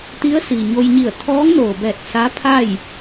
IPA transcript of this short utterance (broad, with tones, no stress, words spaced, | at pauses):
t̪i˧˥ə̯si˩ɲo˧jɲi˧˩ə̯ t̪ʰɔː˧˥ŋnoː˩bɛː˧˩t̚ sa˧˥pʰa˥˨j